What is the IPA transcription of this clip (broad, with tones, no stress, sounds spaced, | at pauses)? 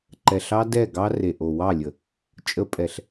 ǃ ɛ˨ ɬ ɑ˦ d ɛ˦˨ ɡ ɑ˦ r e˨ ʔ o˨ w ɑ˦˨ lʲ ə˨ | t͡ʃʼ ə˦ pʼ ɛ˨ ɬ